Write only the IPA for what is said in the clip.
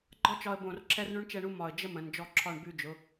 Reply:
ɡ͡ǃ ɒ˥ t͡ʃ ɒ˧ ə̯ b õ˧˩ r ǁʰ ɛ˥ r ɳ ʉ˥ ɳ t͡ʃ ɛ˥˧ ɳ u˥ m ɒ˧˩ ə̯ d͡ʒ ə˥ m ə̃˩˧ n d͡ʒ ɔ˥˧ ǁʰ ɒ˥˧ ɳ b ʉ˧ d͡ʒ ʊ˩˧

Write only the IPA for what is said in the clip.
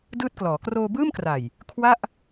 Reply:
d ɯː˥˩ t̚ k l ɔː˩˦ k r oː˧ b ɯː˥˩ m k r a˨˩ j | kʰ w a˥˩ ʔ

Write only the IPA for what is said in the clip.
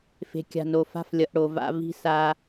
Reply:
f e̤˨ kʲ a̤˨ n o˨ f a̤˦˨ f lʲ ʌ˨ ʔ ɽ o˨ v a̰˦ v i̤˦ s a˦

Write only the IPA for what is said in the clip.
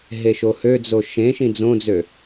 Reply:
ɦ e ʃ o h ø d͡z o ʃ ẽ ʃ ĩ d͡z õ d͡z ø

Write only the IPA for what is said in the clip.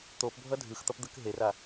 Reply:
t̪ o p bʱ ʌ dʱ ɯ x t̪ ʌ p d̪ ɯ k ɦ e r a

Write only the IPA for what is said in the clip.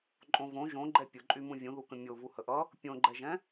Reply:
ǃʼ õ v õ ʒ õ ɡ͡ǃ ɛ pʲ ʊ ǃʼ y m ũ vʲ ũ ð u k ə̃ mʲ o v u h ə ʔ ʌ | pʲ õ ɡ͡ǃ ɛ ʒ ɛ̃

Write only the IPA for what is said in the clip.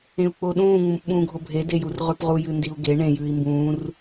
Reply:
ẽ u̯ k͡p o ɗ ũː ŋ͡m ũ p ɓ ũː ɡʱ o bʱ e d e j u r ʁ ʉ p ʁ u j ɨ n d i u̯ ɡ e ɳ ẽ j ʉː i̯ m b ũː r

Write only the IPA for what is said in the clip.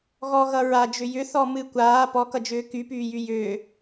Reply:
ɣ ɔ ɣ ʌ ɹ a d͡ʒ ʏ j ʏ θ ɔ m ɨ kʷ aː p ɔ k ʌ d͡ʒ ʏː k y p yː j y j ʏː

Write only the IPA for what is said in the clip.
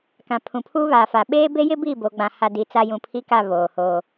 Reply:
k ã˨ pʰ ũ˨ pʰ uː˦ β aː˨ f a˨ ɓ eː˦ b e˦ j ɪ˦ b i˦˨ b oː˦ ɡ͡b ã˦ h a˦ d i˨ t͡s a˦ j ũ˨ pʰ i˦ k a˦˨ β oː˨ h oː˨

